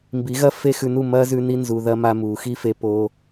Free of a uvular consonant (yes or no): yes